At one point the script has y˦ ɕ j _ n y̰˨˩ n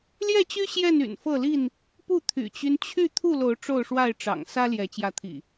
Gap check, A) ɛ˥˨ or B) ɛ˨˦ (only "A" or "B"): A